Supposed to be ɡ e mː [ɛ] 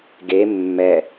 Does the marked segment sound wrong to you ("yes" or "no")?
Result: no